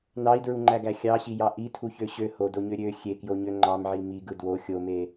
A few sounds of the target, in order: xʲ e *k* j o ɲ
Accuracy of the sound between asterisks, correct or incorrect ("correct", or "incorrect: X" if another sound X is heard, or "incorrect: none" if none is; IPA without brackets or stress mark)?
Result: correct